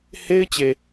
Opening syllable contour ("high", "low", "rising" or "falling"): high